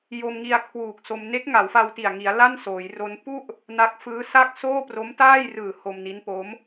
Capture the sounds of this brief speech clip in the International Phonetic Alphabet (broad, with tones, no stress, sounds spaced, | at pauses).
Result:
j o˧ m ŋ i˧ a̯ kʰ w uː˨˩ k̚ s o˧ m n e˦˥ k̚ ŋ a˩˦ w f a˧ w t i˨˩ a̯ ŋ i˩˦ a̯ l a˥˩ n s oː˩˦ j r o˦˥ n p u˥˩ ʔ | n a˦˥ k̚ f ɯː˦˥ s a˥˩ k̚ s oː˥˩ p r o˦˥ m t aː˥˩ j r ɯː˨˩ h o˧ m n i˦˥ n p o˦˥ m